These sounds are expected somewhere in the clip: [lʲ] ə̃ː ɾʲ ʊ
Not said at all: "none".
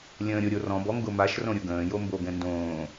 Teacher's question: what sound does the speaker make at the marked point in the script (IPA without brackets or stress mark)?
lʲ